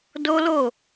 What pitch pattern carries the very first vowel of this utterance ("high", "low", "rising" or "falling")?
high